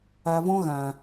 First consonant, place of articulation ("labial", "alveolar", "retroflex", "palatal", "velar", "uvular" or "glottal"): labial